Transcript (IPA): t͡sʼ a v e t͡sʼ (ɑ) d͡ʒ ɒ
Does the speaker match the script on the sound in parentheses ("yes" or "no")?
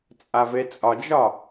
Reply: no